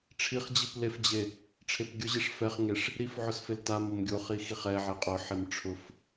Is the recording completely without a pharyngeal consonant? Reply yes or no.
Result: no